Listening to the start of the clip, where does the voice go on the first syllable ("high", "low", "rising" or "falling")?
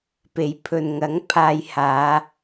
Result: low